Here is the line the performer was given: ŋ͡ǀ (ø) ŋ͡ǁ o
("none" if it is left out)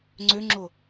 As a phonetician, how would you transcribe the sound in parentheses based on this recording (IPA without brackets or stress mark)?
ø